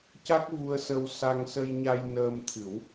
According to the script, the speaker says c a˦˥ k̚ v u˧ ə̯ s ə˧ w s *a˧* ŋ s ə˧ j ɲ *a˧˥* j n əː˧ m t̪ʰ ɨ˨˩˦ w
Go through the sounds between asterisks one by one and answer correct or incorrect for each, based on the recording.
correct, incorrect

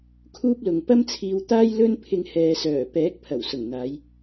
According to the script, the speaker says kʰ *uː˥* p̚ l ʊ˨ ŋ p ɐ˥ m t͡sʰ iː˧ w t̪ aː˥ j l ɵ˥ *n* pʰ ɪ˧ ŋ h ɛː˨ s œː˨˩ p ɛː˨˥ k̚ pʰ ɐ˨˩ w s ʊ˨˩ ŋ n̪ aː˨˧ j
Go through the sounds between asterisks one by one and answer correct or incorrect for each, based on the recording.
correct, correct

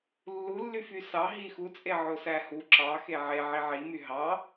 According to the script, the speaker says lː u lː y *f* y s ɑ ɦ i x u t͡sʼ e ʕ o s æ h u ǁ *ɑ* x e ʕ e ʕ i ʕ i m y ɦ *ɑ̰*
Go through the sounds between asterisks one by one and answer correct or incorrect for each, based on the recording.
correct, correct, incorrect

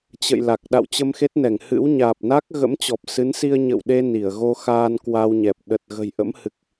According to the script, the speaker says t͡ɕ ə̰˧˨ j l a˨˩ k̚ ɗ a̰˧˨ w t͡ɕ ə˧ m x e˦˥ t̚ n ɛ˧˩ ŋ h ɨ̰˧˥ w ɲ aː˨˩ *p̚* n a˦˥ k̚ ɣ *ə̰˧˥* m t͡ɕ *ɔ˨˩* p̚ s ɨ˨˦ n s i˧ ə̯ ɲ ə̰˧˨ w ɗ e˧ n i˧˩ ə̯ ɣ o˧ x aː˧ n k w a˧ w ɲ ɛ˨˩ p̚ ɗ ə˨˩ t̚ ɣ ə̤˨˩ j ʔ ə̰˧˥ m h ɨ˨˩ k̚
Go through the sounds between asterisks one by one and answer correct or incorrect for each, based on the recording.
correct, correct, correct

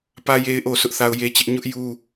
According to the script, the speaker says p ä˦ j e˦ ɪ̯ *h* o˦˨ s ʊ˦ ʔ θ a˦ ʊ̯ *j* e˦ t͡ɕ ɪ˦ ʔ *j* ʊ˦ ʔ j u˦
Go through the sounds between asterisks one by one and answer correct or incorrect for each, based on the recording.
incorrect, correct, incorrect

